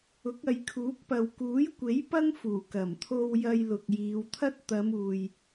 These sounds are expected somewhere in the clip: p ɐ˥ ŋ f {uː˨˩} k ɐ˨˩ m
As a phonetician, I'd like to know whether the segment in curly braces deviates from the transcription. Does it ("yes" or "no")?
no